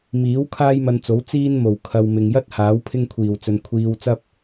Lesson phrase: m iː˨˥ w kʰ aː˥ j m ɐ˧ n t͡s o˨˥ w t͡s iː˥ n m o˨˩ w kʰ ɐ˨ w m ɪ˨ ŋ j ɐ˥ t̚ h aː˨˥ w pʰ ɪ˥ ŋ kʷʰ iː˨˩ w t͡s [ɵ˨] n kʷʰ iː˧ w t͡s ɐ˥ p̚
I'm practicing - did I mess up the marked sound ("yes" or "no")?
no